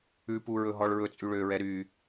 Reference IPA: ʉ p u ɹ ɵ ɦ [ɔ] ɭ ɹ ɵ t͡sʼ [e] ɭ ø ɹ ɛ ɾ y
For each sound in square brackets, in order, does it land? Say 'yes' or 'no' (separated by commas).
yes, no